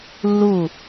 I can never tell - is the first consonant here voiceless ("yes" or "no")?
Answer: no